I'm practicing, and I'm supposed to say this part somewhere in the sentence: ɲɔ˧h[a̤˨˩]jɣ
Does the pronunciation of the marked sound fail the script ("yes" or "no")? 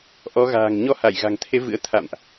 yes